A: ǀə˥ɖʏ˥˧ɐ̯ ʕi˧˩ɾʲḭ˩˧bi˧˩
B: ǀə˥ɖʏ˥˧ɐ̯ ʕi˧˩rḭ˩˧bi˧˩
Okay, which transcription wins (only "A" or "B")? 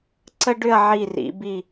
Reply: B